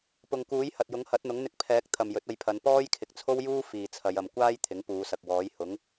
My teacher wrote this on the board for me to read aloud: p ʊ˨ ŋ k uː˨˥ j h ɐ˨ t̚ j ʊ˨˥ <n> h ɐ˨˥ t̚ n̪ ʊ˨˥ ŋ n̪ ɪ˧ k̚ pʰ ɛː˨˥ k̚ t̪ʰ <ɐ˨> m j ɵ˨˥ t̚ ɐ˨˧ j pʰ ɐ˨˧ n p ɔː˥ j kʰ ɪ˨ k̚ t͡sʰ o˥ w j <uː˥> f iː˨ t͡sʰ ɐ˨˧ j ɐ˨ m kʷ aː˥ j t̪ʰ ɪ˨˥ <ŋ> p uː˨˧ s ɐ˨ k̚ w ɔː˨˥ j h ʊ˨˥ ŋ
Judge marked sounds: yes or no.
no, yes, yes, yes

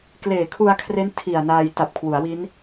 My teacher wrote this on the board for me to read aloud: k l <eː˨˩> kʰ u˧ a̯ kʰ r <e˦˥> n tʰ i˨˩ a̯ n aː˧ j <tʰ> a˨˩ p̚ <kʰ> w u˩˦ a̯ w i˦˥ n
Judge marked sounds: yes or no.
yes, yes, no, yes

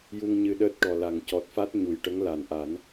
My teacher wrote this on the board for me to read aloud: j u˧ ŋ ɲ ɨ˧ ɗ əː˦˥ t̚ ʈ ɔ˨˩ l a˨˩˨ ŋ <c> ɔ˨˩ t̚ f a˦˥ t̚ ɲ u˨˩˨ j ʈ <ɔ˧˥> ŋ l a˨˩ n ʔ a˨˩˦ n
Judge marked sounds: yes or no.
yes, no

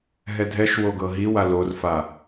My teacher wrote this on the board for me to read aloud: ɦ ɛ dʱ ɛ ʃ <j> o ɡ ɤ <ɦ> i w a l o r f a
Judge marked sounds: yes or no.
no, yes

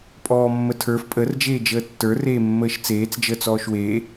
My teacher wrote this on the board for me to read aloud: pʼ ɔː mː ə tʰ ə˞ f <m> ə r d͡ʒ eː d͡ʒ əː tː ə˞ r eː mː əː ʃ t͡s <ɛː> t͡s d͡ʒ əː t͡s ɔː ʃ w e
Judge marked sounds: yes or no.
no, no

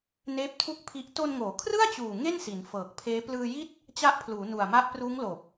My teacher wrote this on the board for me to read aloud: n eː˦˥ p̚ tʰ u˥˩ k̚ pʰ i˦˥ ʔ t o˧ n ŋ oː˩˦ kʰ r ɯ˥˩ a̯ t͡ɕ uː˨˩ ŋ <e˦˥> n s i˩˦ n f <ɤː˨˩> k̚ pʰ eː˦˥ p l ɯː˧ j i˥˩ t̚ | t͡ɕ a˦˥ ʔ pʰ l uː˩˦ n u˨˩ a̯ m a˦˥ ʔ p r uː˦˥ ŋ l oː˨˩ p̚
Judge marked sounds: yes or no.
no, yes

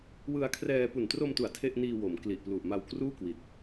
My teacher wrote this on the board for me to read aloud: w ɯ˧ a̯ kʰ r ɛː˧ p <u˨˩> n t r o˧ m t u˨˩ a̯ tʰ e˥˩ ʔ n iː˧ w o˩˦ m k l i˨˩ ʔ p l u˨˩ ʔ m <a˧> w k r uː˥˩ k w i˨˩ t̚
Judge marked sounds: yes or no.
yes, yes

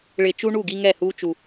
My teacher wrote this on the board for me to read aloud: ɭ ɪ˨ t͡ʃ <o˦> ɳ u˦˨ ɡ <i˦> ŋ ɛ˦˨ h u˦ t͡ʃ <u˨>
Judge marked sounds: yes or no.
no, yes, no

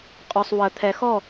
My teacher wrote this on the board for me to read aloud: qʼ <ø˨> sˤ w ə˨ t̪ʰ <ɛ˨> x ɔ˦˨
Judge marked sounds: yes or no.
yes, yes

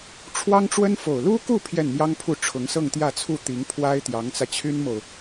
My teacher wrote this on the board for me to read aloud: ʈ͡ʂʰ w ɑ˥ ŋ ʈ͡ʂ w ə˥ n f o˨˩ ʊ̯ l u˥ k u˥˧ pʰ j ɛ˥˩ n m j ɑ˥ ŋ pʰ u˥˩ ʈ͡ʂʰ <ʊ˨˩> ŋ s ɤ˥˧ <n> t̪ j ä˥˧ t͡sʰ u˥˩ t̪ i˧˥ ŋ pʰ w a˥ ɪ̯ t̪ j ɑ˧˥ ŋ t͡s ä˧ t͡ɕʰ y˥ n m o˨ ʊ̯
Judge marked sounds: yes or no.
no, no

